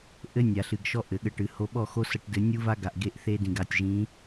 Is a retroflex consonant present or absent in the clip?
present